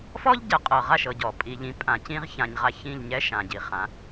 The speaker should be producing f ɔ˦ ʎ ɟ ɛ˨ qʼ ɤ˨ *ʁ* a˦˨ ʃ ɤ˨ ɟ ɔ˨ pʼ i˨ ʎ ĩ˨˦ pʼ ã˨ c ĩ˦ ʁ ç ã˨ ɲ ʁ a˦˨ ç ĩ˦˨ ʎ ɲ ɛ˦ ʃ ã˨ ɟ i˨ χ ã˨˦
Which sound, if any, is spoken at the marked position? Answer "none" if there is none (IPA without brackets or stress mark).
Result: ʁ